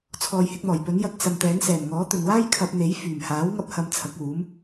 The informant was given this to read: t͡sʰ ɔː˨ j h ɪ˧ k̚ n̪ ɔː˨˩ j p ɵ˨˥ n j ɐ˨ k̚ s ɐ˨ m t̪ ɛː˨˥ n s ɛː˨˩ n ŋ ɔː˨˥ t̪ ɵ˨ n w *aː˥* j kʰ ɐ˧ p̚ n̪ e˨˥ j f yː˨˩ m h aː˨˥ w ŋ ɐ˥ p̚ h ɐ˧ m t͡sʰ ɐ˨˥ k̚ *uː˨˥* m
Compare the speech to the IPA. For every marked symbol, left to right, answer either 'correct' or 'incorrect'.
correct, correct

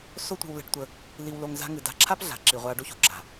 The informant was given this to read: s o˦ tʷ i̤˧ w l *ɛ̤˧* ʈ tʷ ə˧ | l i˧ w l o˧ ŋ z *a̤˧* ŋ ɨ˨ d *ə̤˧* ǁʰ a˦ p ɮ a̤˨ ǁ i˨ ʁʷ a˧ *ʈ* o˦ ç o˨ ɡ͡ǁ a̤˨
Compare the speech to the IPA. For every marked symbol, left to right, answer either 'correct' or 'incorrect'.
correct, correct, incorrect, incorrect

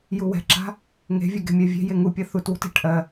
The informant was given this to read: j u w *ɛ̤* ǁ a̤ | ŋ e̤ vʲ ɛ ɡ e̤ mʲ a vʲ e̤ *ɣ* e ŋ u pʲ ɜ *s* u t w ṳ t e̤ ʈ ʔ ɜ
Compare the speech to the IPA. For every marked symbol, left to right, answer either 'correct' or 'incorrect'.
correct, incorrect, incorrect

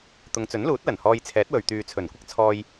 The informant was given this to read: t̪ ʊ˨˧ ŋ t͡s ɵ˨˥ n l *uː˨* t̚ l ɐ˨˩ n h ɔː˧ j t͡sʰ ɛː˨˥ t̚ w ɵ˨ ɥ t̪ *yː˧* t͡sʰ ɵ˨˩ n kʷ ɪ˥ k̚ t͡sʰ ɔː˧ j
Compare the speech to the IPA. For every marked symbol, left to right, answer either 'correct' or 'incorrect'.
incorrect, incorrect

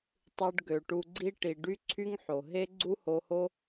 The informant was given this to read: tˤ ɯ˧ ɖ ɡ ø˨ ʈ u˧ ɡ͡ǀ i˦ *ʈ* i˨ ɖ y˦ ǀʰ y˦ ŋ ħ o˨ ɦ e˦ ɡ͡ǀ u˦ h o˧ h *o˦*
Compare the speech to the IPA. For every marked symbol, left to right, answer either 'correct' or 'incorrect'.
correct, correct

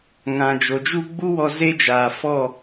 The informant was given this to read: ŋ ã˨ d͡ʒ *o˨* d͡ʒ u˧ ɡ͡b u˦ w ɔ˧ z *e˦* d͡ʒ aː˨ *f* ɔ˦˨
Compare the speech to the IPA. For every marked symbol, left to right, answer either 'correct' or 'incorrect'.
correct, correct, correct

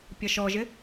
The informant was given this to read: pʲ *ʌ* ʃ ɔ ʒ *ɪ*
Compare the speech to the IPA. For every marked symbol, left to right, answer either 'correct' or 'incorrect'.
correct, correct

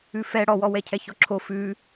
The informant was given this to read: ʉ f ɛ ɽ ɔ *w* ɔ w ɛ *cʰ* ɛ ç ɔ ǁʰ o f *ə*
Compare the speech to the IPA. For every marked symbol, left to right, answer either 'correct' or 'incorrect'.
correct, correct, incorrect

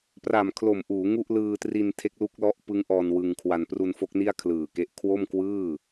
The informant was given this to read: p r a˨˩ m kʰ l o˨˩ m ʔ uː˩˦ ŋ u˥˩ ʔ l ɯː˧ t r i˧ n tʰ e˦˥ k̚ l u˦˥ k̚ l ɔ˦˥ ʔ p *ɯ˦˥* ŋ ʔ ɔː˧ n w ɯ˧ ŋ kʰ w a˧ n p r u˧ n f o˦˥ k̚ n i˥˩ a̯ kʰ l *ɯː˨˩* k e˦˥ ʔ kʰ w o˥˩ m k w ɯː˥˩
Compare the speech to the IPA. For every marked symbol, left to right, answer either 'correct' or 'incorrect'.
correct, correct

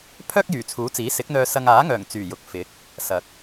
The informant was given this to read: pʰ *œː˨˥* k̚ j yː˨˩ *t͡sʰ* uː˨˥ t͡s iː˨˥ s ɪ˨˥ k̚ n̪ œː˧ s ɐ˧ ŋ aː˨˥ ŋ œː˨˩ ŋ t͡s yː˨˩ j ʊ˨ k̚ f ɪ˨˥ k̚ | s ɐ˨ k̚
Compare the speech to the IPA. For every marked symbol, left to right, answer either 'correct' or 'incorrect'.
incorrect, correct

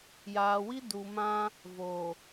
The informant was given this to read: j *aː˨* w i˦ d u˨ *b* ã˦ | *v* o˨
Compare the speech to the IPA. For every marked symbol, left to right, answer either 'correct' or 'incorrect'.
correct, incorrect, correct

